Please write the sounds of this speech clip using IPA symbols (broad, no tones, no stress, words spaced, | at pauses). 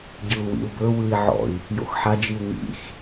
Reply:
ɟɯu̯wḭu̯bɵ wɯi̯ʕɔ̰i̯ | jo̰xħad͡ʒiu̯ ŋḭx